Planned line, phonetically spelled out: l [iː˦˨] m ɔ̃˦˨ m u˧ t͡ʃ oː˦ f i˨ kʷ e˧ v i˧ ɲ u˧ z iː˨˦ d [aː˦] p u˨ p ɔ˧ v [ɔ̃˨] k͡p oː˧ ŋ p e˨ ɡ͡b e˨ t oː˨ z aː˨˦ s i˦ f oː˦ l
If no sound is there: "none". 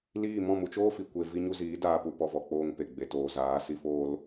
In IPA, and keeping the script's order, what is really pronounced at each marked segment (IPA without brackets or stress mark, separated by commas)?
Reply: iː˦˨, aː˧, ɔ˨